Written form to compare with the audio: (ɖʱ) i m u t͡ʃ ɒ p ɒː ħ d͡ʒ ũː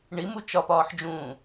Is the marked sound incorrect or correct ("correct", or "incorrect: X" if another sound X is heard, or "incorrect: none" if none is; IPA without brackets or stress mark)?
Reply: incorrect: ɳ